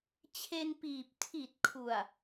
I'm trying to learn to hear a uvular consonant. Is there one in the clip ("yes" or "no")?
no